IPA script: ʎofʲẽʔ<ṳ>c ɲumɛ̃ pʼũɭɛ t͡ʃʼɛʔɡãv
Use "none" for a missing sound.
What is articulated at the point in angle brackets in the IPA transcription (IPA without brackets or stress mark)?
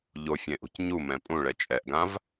ṳ